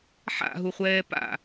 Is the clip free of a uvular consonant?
no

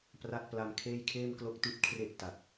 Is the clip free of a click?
yes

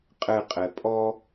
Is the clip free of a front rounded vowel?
yes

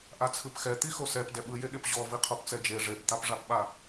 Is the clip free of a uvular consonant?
no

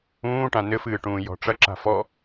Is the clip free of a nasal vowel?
no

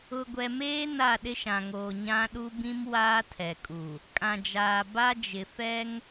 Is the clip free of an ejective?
no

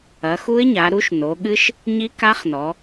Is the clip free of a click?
yes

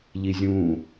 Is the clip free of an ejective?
yes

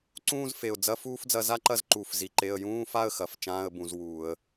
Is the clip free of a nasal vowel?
no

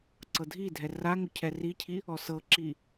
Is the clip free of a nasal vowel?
yes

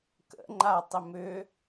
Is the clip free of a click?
no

